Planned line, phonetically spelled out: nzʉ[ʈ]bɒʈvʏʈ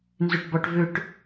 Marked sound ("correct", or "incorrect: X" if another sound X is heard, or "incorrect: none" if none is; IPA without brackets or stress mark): correct